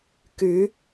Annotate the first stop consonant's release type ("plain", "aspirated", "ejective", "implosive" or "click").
plain